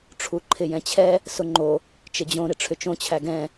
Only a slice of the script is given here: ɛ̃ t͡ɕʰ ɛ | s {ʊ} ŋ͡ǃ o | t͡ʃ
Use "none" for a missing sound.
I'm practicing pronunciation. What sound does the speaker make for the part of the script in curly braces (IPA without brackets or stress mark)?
ʊ